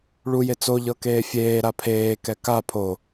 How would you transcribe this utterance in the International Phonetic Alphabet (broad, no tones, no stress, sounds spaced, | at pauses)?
ɭ u j e t͡s o ʎ ɤ k eː fʲ eː ɾ a pʰ eː k ɛ k a pʰ o